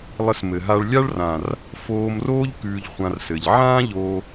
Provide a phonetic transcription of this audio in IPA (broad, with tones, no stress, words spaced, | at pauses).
lˠɘ˧smɘ˨ɦa˧ɭ lʲa˦ɭrã˨r | foː˧mroː˦ʎ kʉː˧ʎχʷã˧rsɘ˨ʎ ʕãː˦ʎoː˧